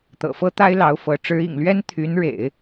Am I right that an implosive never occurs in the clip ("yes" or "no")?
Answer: yes